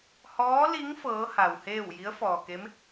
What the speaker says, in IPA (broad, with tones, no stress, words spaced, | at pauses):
hɔː˧˥li˧˥ŋ fɤː˧˥ha˩wheː˥˨w ji˧˥ə̯fɔː˩ke˧˥m